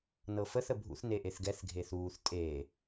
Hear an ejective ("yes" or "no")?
yes